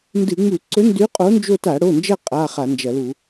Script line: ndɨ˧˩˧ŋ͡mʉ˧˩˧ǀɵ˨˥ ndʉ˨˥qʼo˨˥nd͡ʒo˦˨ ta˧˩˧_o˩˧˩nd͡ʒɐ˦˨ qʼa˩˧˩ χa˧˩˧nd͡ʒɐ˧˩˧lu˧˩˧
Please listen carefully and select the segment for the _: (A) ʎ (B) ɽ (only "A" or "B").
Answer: B